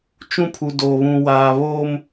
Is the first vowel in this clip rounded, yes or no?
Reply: yes